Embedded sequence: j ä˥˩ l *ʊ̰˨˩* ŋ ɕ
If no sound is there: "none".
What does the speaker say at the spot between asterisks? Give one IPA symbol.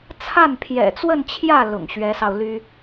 ʊ̰˨˩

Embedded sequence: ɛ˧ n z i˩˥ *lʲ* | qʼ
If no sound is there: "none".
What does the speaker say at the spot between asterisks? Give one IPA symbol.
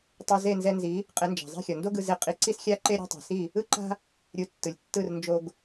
none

